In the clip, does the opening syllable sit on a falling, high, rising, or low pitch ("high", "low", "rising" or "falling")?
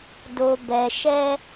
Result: low